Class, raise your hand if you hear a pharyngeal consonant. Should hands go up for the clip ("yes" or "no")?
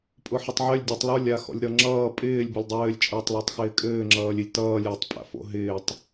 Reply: yes